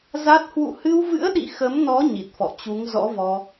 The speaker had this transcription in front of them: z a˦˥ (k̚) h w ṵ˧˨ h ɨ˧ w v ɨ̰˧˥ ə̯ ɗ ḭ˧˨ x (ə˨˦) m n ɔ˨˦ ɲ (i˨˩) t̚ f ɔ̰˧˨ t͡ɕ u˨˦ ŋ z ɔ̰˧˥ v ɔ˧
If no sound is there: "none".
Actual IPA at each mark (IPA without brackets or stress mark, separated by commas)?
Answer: t̚, ə˨˦, i˨˩